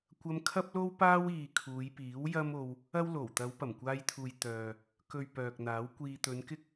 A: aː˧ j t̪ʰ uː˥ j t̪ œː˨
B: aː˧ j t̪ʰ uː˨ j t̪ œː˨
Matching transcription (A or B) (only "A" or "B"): B